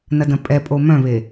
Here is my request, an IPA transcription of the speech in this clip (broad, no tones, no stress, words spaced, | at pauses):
nɐdɐ̃pʼɛpʼo mœ̃βe